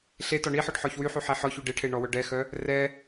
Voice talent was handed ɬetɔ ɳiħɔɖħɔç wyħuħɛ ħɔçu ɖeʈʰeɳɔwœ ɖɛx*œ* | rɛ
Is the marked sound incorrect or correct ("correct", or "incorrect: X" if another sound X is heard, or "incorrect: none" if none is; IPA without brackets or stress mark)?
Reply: correct